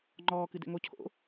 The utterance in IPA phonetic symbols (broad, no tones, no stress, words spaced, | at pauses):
ŋ͡ǃɔː kɨdɛ̰ŋo cʰo̰